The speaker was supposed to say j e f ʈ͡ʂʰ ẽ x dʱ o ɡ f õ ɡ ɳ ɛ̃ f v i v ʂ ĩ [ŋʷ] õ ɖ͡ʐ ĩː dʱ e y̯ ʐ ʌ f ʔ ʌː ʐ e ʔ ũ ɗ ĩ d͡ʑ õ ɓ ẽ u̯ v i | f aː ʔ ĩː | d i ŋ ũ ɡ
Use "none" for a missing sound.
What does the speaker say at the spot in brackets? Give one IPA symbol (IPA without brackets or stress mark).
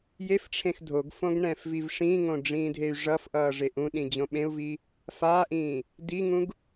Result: ŋ